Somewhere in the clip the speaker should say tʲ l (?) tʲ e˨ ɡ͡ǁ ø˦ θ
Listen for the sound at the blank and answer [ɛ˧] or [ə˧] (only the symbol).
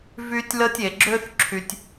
ə˧